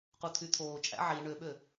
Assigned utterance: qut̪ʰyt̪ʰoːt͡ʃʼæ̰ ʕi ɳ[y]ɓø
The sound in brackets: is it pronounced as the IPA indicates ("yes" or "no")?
no